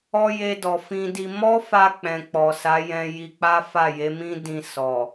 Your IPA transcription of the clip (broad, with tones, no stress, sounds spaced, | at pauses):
ɔ˧ j e˧ d ɔ˨ f ĩ˧ d i˧ m ɔ˦ f a˧ k͡p ɛ̃˨ k͡p ɔ˨ s a˨˦ j ɛ̃˧ j i˧ k͡p a˦ f a˦˨ j e˨˦ m ĩ˦ d ĩ˧ s ɔ˨